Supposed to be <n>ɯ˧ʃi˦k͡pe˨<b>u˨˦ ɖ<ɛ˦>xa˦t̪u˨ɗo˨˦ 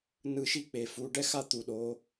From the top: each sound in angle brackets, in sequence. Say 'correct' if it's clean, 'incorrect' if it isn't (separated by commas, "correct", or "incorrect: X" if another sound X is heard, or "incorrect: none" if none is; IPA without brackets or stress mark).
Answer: correct, incorrect: f, correct